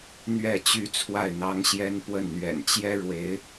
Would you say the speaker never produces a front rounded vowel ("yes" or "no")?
no